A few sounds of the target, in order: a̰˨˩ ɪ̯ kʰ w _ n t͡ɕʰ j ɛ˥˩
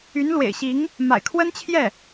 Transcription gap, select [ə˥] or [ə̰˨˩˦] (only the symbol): ə˥